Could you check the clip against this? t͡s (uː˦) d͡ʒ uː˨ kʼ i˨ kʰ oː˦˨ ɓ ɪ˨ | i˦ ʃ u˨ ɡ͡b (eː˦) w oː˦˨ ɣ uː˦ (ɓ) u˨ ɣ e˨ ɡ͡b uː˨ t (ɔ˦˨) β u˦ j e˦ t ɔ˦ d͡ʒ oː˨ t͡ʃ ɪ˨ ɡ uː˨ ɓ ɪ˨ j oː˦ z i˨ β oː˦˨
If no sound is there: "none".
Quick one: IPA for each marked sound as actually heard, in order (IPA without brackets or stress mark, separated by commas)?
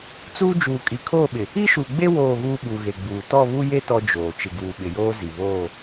uː˦, e˦, ɓ, ɔ˦˨